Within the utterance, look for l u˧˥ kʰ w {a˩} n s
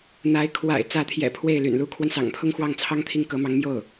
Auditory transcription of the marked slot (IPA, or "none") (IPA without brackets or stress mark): a˧